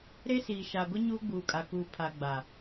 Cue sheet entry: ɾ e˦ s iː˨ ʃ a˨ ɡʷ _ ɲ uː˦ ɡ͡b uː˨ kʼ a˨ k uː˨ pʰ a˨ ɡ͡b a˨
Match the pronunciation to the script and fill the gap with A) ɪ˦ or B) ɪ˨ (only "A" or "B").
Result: A